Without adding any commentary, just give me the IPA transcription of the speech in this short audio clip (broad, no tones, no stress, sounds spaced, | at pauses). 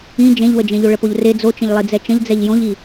ĩ d͡ʒ ẽ ʎ w ə d͡ʒ ẽ ʎ o ɭ ə p o ʎ r e d͡z o t͡ʃ ə̃ ʎ lˠ i d͡z ɛ t͡ʃ ə̃ ʎ d͡z ɛ ʎ j õ ʎ i